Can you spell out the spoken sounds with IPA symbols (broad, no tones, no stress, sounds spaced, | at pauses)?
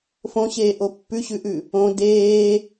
f õ ɕ eː ʔ o pː ʉ ɕ ʉ ʔ ʉ | õ d eː